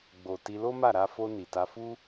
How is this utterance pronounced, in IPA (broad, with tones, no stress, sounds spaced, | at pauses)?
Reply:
ɡ͡b o˨ t i˧ l o˦ m a˦˨ ɾ a˧ f o˧ n i˨ t a˧ f u˦